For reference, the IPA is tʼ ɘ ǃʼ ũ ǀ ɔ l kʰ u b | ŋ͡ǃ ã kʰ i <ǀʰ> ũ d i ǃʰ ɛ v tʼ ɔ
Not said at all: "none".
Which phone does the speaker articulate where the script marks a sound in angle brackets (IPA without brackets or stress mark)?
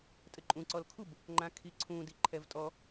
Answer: ǀʰ